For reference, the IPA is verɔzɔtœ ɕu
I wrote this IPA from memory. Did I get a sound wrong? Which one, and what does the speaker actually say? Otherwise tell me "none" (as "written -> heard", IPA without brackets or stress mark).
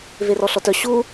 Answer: z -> ɬ